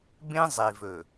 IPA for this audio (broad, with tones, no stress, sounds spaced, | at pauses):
b ẽ˦ zˤ e˨ v ɵ˨